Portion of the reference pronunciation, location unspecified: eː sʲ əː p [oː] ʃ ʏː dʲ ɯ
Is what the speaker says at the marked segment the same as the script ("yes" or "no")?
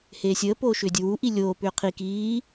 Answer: yes